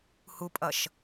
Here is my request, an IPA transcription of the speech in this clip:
h u pʼ ʌ ʃ

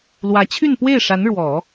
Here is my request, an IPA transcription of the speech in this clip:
l w ä˧˥ t͡ɕʰ y˥˧ n p w e˥˩ ɪ̯ ʂ a˧˥ n ɻ w ɔ˨˩˦

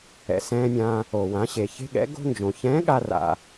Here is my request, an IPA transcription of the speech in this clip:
ɛ̰˩ s ɛ̃ː˧ mʲ ã˧ | o˩ w ã˩˧ ɕ e˩ ç e̤˧ ɠ ɛ̰˩˧ ɡ o̤˧ n d͡ʒ õ˩ ç ɛ̃ː˧˥ ɠ a˧ r a̰˩

